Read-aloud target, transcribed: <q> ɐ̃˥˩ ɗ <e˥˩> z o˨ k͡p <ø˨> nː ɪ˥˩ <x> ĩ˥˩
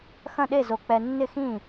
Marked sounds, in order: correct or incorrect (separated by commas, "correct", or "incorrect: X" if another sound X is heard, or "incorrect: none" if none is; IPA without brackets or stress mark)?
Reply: incorrect: x, correct, incorrect: ɛ˨, correct